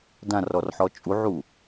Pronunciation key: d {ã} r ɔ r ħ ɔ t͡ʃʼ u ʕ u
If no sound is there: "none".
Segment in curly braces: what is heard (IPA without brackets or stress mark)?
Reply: ã